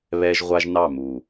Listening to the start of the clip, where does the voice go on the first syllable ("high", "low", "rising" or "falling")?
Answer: high